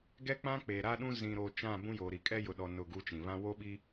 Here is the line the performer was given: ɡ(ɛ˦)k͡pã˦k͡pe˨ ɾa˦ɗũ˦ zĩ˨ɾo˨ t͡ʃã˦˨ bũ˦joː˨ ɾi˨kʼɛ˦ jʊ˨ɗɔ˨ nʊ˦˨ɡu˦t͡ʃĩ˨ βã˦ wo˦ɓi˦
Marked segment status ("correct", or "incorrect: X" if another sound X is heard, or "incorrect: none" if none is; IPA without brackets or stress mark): correct